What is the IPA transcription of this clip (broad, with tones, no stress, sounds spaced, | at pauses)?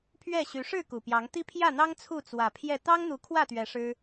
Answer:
pʰ ɥ ɛ˥˨ ɕ y˨˦ ʂ ɻ̩˥˨ k u˨˩ p j ɑ˨˦ ŋ t̪ i˦ pʰ j ä˥˨ n̪ ɑ˦ ŋ t͡sʰ u˥˨ t͡s w ä˨˩ pʰ j ɛ˥˨ t̪ ɑ˦ ŋ n̪ u˨˦ kʰ w ä˥˨ t̪ ɥ ɛ˨˦ ʂ ɻ̩˦